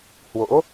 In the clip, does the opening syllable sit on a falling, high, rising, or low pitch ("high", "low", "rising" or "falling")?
rising